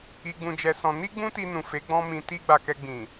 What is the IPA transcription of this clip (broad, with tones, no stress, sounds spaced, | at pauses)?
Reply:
i˧ ɡ͡b ũ˧ d͡ʒ ɛ˧ s ɔ̃˧ n i˦ ɡ͡b ũ˦ t i˧ n ũ˨ f e˨˦ ɡ͡b ɔ̃˦ m ĩ˧ t i˦ ɡ͡b a˧ k ɛ˧ ɡ͡b ĩ˨